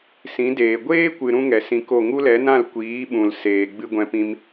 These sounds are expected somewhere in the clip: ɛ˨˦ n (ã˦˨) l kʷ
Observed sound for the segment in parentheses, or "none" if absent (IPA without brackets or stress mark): ã˦˨